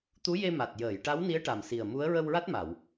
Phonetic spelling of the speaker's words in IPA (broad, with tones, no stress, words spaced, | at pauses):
t̪u˧˥je˧ma˨˩t̚ jəː˨˩˨jʈa˧˥wni˧˥ə̯ ʈa˨˩msi˨˩ə̯mu˧˥ə̯ ɹə˧wɹa˦˥t̚ma˨˩˨w